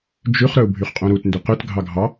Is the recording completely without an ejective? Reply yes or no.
no